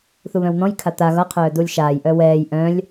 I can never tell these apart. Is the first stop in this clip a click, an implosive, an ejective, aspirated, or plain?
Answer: aspirated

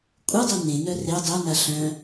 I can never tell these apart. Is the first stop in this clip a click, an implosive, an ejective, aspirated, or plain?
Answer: ejective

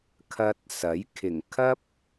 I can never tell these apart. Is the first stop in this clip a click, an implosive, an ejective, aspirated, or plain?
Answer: aspirated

